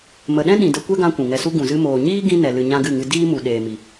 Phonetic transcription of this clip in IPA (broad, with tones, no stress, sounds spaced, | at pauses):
m ə˨ ɗ ɛ̃˦ ɗ ĩ˨ d ə˧ kʷ ɛ˦ ɡ ã˧ kʷ ũ˨ ŋ ɛ˧ s u˦ ɡ ũ˨ z ɨ˧ m oː˨ ɲ iː˦ ɡ ĩ˦ n ɛ˨ l ɨ˨ ɲ ã˧ ɡ ɨ˦˨ ŋ ɨ˧ d iː˦ m u˨ ɗ eː˨ m i˨